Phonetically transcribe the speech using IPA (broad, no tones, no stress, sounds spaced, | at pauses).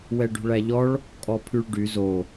w ɛ ɖ ṳ ɭ æ ʎ ɔ ɭ | kʼ ɔ pʰ y ɭ ɖ y z o